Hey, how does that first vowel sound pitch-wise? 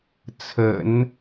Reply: low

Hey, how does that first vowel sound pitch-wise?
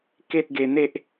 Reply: high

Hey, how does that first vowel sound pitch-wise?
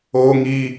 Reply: high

